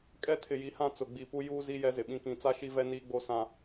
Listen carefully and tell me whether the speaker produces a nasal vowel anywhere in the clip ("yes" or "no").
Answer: yes